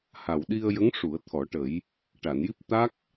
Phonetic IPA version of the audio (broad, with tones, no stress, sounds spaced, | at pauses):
h a˨˩ w ɗ i˧ ə̯ j ə˧˥ ŋ ʂ u˨˩˦ ə̯ t̪ʰ ɔ˨˩˦ ʈ ə˨˩˦ j | ʈ a˨˩˨ n j i˦˥ p̚ t̪ a˦˥ k̚